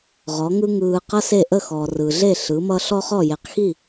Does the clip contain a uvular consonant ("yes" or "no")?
yes